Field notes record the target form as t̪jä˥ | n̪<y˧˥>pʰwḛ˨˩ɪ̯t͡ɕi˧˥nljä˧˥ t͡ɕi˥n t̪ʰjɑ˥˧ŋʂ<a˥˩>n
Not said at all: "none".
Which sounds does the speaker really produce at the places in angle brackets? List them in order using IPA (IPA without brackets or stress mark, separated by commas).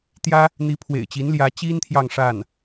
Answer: i˧˥, a˥˩